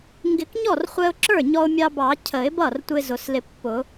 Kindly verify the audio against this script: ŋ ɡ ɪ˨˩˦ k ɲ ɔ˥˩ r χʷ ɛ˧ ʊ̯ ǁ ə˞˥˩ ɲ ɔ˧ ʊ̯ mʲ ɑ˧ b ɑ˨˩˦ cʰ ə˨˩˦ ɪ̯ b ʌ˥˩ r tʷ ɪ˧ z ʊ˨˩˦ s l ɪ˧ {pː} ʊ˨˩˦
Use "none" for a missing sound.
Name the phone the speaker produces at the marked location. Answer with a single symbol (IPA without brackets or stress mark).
pː